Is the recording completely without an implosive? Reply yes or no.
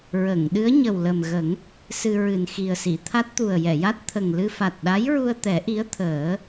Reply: no